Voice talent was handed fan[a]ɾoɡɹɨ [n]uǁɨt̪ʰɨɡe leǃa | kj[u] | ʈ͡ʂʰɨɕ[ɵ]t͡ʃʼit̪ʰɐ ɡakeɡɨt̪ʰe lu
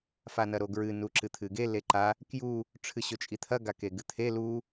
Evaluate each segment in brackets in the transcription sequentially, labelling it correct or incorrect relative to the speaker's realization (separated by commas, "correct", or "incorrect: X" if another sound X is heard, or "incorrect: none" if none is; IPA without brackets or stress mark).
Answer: incorrect: ɐ, correct, correct, correct